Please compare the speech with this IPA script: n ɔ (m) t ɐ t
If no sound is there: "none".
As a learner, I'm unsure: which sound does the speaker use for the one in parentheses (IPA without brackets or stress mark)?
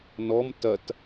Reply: m